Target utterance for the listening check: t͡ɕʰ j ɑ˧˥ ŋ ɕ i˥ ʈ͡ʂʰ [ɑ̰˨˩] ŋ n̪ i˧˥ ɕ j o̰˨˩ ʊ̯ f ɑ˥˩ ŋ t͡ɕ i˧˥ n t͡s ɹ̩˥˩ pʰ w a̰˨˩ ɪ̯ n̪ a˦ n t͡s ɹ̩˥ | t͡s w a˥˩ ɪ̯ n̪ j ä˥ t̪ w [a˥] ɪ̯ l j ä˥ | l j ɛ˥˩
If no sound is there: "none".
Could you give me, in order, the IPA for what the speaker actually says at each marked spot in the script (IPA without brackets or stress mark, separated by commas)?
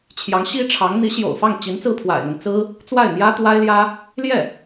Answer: ɑ˧˥, a˥